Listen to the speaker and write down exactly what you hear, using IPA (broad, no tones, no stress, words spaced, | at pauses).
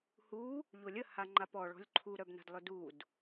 hu | ʎolʲə haŋ͡ǃapɔɭ ɔ̤lʲǃʰu ɾœbna̤dlˠʏdud